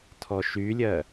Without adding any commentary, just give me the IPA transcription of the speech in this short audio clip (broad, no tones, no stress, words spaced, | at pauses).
tʰɔʃylʲɜ